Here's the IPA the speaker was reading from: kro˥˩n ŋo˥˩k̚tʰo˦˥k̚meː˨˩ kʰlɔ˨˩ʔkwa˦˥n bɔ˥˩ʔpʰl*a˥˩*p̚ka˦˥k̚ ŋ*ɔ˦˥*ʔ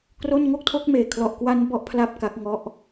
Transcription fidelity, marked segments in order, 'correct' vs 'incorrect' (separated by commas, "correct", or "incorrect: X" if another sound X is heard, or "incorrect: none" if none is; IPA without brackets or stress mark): correct, correct